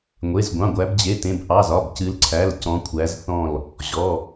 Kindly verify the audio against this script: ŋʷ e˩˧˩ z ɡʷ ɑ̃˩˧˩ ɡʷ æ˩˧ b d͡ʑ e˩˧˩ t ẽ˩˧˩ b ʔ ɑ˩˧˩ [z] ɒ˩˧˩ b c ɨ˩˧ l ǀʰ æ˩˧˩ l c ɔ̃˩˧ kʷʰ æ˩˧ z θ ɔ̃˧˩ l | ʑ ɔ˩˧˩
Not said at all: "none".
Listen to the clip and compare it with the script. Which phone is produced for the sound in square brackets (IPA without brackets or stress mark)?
z